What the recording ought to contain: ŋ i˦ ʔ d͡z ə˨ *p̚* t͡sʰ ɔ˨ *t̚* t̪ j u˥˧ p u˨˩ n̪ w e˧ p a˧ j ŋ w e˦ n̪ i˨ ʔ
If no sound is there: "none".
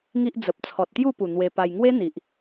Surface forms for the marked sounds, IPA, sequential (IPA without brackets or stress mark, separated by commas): p̚, t̚